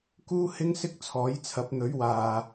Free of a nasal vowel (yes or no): yes